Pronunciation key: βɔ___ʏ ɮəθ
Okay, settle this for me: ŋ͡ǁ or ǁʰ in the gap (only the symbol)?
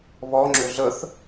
ŋ͡ǁ